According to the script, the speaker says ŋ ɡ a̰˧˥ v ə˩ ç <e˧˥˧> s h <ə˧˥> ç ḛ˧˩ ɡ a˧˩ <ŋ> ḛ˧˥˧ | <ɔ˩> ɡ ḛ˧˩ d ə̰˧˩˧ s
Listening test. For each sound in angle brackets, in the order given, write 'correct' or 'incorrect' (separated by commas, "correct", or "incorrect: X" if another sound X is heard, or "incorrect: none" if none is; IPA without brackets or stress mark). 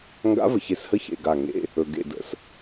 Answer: incorrect: e˧˩, incorrect: ə˧˥˧, correct, incorrect: ɵ˩